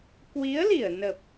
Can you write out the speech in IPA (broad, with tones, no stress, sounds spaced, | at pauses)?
k w i˨˦ ə̯ l i˧˩ ə̯ n ə˨˩ p̚